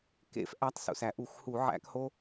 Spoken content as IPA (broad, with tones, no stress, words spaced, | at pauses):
kḛ˦˥fʔæ˨˦tˤ sṵ˩sæ˩ʔu˧˩˧xhu˧˩˧ ʕæ̰˦˥kho˦˥